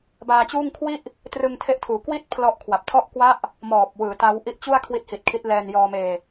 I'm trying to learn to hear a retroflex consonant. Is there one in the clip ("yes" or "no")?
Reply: no